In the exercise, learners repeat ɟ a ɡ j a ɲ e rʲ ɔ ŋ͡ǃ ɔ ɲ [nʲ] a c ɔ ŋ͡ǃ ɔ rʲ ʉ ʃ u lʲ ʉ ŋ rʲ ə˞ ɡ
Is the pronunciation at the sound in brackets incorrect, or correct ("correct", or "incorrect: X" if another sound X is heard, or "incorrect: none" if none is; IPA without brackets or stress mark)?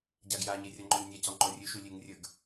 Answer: correct